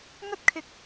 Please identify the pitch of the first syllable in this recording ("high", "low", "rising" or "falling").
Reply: high